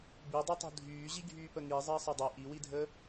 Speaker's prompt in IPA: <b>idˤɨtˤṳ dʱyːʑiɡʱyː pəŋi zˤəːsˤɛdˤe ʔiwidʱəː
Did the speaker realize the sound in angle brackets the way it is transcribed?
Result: yes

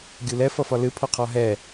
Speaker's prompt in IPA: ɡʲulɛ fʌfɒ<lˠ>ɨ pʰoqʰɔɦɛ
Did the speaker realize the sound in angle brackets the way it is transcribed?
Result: no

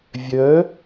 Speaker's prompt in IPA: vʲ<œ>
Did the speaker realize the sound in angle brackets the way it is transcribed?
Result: yes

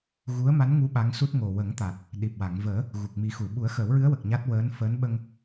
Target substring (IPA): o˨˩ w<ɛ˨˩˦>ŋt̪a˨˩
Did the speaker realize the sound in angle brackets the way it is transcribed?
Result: no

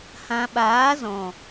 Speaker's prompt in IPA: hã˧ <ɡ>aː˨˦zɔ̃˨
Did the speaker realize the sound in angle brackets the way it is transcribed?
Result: no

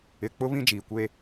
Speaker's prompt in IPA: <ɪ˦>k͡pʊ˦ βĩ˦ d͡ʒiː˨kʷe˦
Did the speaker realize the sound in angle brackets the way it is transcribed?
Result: no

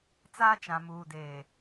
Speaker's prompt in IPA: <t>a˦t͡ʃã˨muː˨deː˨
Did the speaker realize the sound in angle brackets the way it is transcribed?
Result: no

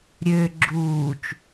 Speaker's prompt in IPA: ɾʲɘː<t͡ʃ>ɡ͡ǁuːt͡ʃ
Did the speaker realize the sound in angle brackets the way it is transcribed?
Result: no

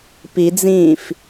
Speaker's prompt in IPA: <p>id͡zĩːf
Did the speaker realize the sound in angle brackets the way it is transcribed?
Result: yes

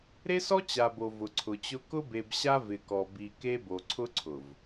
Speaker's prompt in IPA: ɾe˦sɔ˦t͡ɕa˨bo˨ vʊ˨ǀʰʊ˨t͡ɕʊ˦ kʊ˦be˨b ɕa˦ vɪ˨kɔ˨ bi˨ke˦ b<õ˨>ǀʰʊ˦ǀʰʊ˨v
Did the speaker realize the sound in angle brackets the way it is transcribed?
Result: no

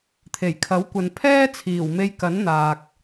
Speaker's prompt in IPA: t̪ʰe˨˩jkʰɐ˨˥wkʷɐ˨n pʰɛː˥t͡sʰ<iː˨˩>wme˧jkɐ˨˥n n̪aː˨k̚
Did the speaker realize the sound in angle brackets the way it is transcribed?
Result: yes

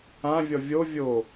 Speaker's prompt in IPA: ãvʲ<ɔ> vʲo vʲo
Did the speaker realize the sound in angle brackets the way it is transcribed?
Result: yes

